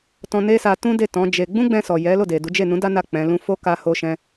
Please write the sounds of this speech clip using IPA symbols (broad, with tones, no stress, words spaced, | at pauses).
tɔ̃˧ne˦sa˧ tũ˦de˦˨ tɔ̃˨˦d͡ʒe˧ ɡ͡bũ˦ɡ͡bɛ̃˧sɔ˨ jɛ˨˦lo˦˨de˨du˨˦ d͡ʒe˦˨nũ˨˦da˦ na˦˨ k͡pɛ̃˨˦lũ˦ fo˦ ka˧ ho˦ʃɛ̃˦